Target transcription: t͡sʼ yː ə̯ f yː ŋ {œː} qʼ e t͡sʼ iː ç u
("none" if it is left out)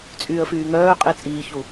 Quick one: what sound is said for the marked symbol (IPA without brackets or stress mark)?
œː